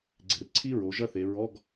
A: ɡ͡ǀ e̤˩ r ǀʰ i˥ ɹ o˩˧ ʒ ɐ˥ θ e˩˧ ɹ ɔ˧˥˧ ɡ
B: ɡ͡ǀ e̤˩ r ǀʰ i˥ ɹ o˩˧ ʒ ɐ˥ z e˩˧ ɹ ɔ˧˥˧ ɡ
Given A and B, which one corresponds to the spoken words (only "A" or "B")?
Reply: A